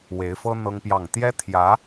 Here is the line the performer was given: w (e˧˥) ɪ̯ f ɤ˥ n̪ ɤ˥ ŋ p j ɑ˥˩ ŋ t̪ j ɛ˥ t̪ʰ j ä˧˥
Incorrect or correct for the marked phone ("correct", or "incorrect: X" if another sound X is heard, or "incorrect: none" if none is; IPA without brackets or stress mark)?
correct